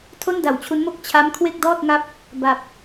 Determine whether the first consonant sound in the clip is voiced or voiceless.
voiceless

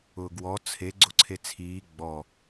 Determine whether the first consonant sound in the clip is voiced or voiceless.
voiced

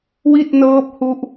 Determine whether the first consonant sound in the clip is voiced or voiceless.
voiced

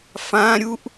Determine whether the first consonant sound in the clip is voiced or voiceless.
voiceless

